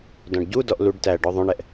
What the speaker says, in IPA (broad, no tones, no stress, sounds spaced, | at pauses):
d ɔ̃ ɖ ɟ u d ɔ ʔ l u ɖ t æ ɖ ɔ ðˤ õ ɳ ɛ ʔ